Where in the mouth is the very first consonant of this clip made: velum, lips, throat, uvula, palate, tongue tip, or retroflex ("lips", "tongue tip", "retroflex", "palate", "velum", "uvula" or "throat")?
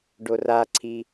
retroflex